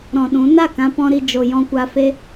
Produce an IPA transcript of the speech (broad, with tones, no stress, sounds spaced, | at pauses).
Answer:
ɾ ɔ̃˨ ɗ ũ˨˦ n a˦˨ k ã˧ p ɔ̃˦ ɾ i˧ d͡ʒ o˧ j ɔ̃˦ kʷ a˦ f e˦